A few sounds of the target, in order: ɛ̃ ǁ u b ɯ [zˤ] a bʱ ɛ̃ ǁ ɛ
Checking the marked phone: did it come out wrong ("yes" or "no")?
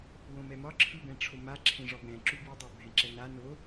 yes